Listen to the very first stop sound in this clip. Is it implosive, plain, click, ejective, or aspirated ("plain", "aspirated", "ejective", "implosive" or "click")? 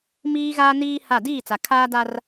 plain